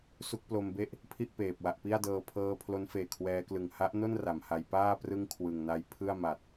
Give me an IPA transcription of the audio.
su˦˥k̚plo˧mbe˥˩ʔ | pʰi˥˩ʔpeː˨˩p̚ wa˨˩ʔpi˥˩a̯dɤː˧ pʰɤː˧pʰlo˦˥nfeː˨˩ kʰwɛː˦˥klɯ˨˩ŋ ha˦˥ʔno˥˩n ra˩˦mha˧j paː˥˩ prɯ˥˩ŋkʰwɯ˨˩ŋna˧j pʰɯ˥˩a̯ ma˨˩t̚

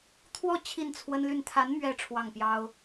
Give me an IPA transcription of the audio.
t̪ʰwɔ˥˧ t͡ɕʰi˥˩nt͡sʰwə˥nly˥˩n t̪ʰa˧˥nmɥɛ˧˥ ʈ͡ʂʰwɑ˥˩ŋpjɑ˥ʊ̯

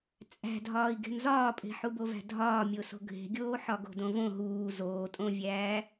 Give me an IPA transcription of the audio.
t͡sʼæ̤dʱɒːi̯ ɡe̤nzɒːpʼe̤ ħubovæ̤dʱɒː mʲoso̤ɡʱe̤ɡʲoː ħɒɡo̤dõvõ ɦuː zoːtʼõvʲæː

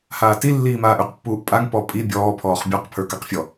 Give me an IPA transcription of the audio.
haːti lːiːmaːʔʉqpːuːʔ pʼaŋ pɔpʼi bʲɔːpʰɔːχ bʲɔqpʰə˞ kaqfʲɔ

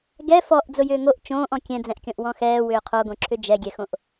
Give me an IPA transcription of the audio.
ɡɛ fɔʔ d͡zʊjʏːŋoʔ t͡ʃõːʔɔ̃ kʲɛ̃d͡zɛ̃ʔkʲɔ̃ʔ wɔ̃xɛː wʏːqʰoɡõ ǁʰʏd͡ʒɛɡʲɛxõʔ

